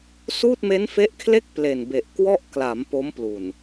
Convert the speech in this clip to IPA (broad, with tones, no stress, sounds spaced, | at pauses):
s uː˥˩ t̚ m e˦˥ n f e˦˥ ʔ kʰ l e˥˩ k̚ p l e˨˩ n b e˨˩ ʔ k w ɔ˥˩ ʔ k l a˩˦ m p o˦˥ m p l u˨˩ n